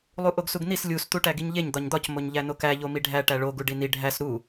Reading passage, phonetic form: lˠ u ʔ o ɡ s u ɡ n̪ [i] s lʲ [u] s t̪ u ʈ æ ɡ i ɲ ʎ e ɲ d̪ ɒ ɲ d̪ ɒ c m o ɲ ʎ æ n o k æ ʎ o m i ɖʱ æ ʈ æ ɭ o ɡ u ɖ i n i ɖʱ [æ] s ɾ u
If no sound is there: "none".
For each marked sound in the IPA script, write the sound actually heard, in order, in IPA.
i, u, æ

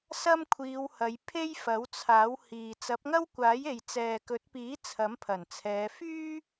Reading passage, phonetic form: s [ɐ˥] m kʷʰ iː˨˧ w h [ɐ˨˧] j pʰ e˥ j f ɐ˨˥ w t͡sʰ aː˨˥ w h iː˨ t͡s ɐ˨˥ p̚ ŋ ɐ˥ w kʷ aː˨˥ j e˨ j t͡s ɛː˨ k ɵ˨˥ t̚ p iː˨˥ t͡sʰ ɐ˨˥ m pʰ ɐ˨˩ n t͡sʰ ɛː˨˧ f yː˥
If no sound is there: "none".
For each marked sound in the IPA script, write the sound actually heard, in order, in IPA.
ɐ˥, ɐ˨˧

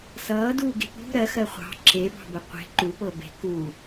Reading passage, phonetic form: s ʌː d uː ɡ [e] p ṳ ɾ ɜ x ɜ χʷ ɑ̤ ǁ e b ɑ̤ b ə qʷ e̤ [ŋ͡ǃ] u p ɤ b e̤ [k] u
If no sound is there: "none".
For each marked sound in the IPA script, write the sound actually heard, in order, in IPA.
e̤, ǃ, k

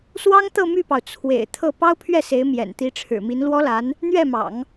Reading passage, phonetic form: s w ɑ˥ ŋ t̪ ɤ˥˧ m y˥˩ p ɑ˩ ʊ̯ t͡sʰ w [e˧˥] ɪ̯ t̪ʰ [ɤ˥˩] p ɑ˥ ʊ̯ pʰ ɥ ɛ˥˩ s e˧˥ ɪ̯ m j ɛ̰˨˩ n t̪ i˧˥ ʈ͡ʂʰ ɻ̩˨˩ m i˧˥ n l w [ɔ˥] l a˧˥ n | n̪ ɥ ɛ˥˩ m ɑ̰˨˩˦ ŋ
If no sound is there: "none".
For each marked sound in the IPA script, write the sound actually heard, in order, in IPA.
ḛ˨˩, ɤ˥˩, ɔ˥

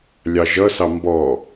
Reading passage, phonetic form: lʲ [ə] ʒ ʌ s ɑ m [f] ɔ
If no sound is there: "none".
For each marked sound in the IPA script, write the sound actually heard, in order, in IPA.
ɑ, b

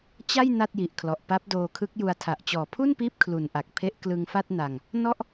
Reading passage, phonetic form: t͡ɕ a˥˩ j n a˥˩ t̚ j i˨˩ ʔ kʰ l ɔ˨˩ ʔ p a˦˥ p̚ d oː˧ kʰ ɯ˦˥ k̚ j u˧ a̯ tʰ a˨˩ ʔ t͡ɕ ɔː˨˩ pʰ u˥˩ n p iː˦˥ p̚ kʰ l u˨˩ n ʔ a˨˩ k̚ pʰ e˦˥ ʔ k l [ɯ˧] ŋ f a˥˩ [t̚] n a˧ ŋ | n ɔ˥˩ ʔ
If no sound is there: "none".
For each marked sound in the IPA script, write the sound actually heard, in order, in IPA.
ɯ˧, t̚

